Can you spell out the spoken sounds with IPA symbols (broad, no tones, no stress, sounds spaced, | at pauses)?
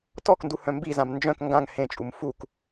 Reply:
t ɔ k n d u h œ̃ m b i z ã m n d͡ʒ œ̃ k ŋ ɡ ã ŋ h ẽ t͡ʃʼ u m f u k